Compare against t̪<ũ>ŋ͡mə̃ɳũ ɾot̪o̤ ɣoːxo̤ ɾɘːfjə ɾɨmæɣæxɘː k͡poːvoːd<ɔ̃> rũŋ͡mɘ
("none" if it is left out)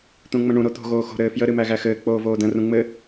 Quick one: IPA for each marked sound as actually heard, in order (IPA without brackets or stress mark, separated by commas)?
ũ, ə̃